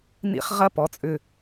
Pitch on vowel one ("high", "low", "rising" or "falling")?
high